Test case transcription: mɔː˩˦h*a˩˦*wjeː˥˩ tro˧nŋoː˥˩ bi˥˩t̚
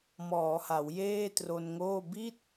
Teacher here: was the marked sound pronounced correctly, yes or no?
yes